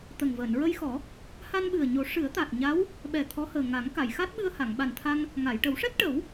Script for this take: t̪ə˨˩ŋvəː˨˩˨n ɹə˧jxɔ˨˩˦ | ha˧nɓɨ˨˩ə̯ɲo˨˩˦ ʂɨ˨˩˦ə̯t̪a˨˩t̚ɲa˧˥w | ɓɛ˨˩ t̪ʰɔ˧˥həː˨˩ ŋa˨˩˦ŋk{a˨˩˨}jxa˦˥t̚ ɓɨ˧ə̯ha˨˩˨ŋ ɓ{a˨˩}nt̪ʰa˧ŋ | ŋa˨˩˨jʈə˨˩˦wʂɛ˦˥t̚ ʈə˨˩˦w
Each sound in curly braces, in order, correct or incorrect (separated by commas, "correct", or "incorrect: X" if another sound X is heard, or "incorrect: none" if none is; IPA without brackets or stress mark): correct, correct